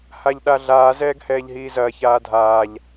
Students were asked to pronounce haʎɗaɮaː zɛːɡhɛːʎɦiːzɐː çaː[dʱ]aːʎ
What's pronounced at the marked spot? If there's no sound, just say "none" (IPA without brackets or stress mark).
dʱ